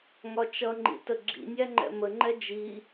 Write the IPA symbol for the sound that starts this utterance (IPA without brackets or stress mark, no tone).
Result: ŋ